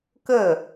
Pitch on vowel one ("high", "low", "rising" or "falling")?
falling